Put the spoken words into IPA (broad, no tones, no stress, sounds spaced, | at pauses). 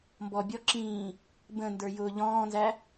m b ɔ bʲ ɔ ǁ ĩː | b ə̃ n d ə˞ j ʊː ʎ ɔ̃ː n z æ